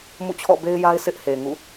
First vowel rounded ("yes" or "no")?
yes